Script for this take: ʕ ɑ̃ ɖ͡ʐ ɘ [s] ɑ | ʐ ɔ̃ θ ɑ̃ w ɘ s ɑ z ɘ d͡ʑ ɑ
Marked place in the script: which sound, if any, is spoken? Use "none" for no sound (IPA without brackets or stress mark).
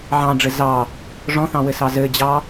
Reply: z